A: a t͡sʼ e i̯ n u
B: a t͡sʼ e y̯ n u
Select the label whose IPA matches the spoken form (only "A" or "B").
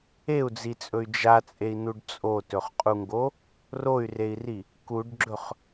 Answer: A